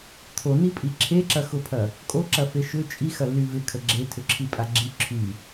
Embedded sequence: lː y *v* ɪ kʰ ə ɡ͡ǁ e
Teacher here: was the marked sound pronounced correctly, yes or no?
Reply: yes